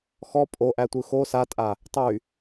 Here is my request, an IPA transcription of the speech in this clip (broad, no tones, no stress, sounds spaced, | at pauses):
x ɔ pʼ o ʔ æ tʷ ɯ x o s a tʼ a | tˤ y